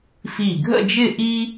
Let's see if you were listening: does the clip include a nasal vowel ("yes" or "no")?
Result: no